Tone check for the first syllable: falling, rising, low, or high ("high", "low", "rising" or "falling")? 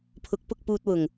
rising